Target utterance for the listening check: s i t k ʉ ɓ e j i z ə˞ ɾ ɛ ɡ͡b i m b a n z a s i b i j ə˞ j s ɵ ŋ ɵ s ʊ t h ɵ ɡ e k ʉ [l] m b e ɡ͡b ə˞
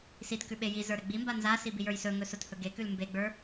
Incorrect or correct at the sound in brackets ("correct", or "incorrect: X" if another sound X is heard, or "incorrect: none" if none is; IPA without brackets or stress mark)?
correct